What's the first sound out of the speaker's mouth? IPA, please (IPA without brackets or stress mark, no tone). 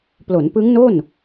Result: p